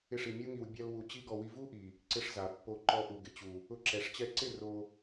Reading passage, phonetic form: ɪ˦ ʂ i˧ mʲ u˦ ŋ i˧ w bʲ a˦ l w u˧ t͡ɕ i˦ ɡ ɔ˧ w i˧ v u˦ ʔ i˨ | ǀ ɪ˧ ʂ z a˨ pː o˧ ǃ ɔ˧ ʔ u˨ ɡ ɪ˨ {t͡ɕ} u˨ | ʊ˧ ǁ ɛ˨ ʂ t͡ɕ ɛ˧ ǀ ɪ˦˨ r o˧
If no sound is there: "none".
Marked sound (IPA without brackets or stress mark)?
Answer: t͡ɕ